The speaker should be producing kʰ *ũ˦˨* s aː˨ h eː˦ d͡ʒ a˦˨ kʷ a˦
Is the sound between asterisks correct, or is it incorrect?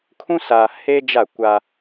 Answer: incorrect